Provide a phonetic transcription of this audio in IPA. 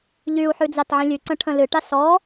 ʎ y u̯ ħ ʉ d͡z a t ʕ ə̃ lʲ ʉ ǀ ə̃ ʈʰ ə̃ l ɨ ʈ a s ɔ

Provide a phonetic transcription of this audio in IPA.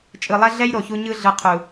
t͡ʃʼ ɯ˨ lˠ ɛ˦ ɮ ɛ˦ j ɾ o˨ ç u˦ ɲ ɯ˦ ɮ ɯ˨ qʰ u˨

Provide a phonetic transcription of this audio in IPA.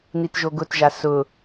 n i t ʒ o ɡ ʊ t ʒ a s ʊ

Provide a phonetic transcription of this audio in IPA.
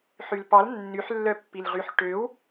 ħ y l p ɑ l nː y ħ lː œ pː i l ʁ y ħ ʈ ø w

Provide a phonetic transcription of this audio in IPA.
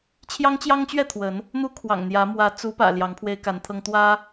t͡ɕʰ j ɑ˦ ŋ t͡ɕ j ɑ˦ ŋ t͡ɕ ɥ ɛ˥˨ t̪ʰ w ə˨˦ n | n̪ u˦ kʰ w ɑ̰˨˩ ŋ n̪ j ä˨˦ m w ä˨˦ t͡s u˨˦ p ä̰˨˩ l j ɑ˨˦ ŋ pʰ w e˦ ɪ̯ k a˨˦ n t̪ʰ ɤ˦ ŋ t̪ w ä˦

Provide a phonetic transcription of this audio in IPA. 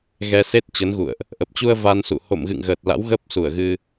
ɣ ɛ˧ s e˦˥ t̚ t͡ɕ ə˨˦ n ɣ ṵ˧˨ ə̯ ʔ | ʔ ə˨˩ p̚ t͡ɕ u˧ ə̯ v a˧ n s ṵ˧˨ h o̰˧˨ m ɣ ɨ̰˧˨ ŋ ɣ əː˨˩ t̚ l a̰˧˥ w ɣ ə˦˥ p̚ s u˧˩ ə̯ ɣ ɨ˧

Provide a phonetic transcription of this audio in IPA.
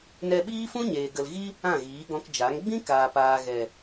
n ɛ˧ ɓ iː˦ f ũ˦ ɲ eː˨ ɡ ə˨ l ɣ i˦ | ã˦˨ ɣ iː˨˦ ɡ ɔ̃˧ k d͡ʒ a˨˦ ŋ ɡ͡b ĩ˦ k aː˨ p aː˨ ɣ ɛ˨

